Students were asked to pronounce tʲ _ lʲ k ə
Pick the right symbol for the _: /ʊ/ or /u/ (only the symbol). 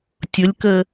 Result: ʊ